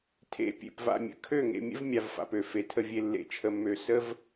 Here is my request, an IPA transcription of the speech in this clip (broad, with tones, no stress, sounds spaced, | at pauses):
tʰ ḛ˨˦ pʲ ḛ˨ p v a̰˨ mʲ ə̰˨ kʰ ø˦˨ ŋ ḛ˨ mʲ ə̰˦ v mʲ a˨ v f a̰˨ p ø˨ f e˨ tʰ ə˦ vʲ e˦ lː ḛ˦ t͡ʃʰ ə˦ mː ø˦ s ə˦ v